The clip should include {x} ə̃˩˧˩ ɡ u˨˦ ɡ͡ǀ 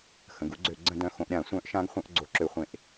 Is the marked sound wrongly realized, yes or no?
no